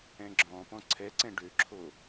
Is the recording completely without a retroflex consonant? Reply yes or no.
no